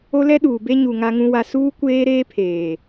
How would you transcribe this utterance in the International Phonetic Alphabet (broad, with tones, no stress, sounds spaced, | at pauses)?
o˦ l ɛ˦ ɗ uː˨ b e˦ ɲ u˨ ŋ a˦ ŋ ũ˦ w a˦ s uː˦ kʷ eː˦ ɾ eː˦ pʰ eː˨